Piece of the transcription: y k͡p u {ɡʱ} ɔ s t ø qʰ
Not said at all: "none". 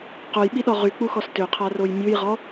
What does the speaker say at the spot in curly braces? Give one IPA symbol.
x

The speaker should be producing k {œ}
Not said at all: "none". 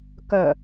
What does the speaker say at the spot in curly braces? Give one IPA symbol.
œ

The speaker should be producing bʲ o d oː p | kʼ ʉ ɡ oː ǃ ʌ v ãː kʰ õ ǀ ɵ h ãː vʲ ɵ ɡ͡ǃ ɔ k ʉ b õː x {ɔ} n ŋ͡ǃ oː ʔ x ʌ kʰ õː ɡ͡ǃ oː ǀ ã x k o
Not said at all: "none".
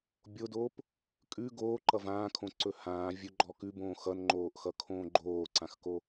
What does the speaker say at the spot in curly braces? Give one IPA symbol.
ʌ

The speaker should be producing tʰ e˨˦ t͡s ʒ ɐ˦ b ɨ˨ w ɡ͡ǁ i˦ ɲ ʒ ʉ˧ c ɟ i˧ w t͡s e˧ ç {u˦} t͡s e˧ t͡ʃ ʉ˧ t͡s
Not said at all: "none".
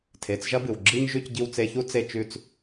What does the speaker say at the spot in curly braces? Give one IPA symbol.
u˦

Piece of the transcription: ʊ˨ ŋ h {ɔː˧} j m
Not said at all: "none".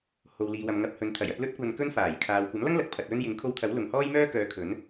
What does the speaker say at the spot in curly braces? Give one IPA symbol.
ɔː˥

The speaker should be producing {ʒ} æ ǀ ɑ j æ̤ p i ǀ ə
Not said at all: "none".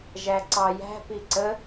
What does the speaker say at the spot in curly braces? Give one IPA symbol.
ʒ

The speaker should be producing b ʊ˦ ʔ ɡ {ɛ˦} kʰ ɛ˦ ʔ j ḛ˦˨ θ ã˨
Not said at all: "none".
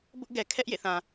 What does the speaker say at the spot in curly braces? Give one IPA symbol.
ɛ˨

